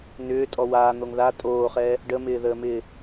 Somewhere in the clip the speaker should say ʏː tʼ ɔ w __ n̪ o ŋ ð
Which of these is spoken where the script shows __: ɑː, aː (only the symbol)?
aː